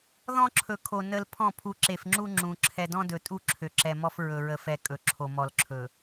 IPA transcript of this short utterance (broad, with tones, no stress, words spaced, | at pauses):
ðɔ̃˦ǁʰɵ˨kʰo˨ nə˨l pʰɔ̃˦˨ pʰu˨ǁe˨fŋ͡ǁu˦ ŋ͡ǁũ˨ ǁʰɛ˨dɔ̃˦dɵ˨tʼu˦˨ ǁʰø˨ǁɛ˨mɔ˦f ɹɵ˨ɹə˨fɛ˨ kʼɵ˨ǁʰo˨mɔ˨lǁʰɵ˨